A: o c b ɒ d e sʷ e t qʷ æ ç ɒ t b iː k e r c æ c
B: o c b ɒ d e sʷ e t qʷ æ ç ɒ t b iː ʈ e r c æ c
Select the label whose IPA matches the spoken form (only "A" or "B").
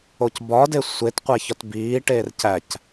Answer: B